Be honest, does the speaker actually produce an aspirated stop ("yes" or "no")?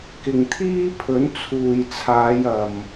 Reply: yes